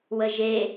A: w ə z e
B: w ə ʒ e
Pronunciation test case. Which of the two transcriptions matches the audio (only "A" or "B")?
B